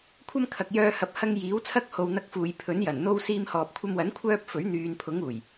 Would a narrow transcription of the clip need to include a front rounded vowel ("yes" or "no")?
yes